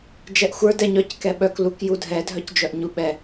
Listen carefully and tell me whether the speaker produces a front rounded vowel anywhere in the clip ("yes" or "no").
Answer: yes